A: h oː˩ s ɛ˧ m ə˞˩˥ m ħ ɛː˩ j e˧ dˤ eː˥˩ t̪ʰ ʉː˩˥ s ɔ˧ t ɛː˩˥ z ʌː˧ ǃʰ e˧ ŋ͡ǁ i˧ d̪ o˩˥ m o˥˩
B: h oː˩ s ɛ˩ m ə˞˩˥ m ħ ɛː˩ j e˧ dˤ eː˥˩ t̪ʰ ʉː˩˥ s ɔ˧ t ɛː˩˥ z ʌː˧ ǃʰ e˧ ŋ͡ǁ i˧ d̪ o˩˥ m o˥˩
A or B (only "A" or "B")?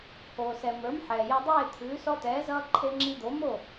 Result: B